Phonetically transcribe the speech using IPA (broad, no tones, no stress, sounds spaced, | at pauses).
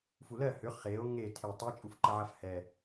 f u l ɜ h ʏ χ e o̯ ŋ e tʰ e tˤ a t͡ʃʼ u f ǃ ə ʕ a f h ɛ